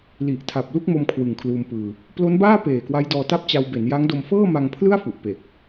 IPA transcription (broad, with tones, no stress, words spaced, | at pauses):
li˨˩ʔ tʰa˨˩p̚lu˥˩k̚mo˧m kʰwɯ˨˩ŋkʰluː˧mpɯː˧ | plo˦˥nbaː˥˩ peː˨˩kwa˦˥jdɔː˧ta˥˩p̚ t͡ɕa˧wbe˩˦n ja˦˥ŋdo˧m fɤː˥˩ma˧ŋpʰlɯ˥˩a̯ fu˨˩ʔpe˨˩k̚